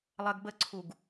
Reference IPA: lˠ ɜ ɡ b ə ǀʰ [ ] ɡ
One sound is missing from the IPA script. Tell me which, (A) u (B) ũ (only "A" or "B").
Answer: A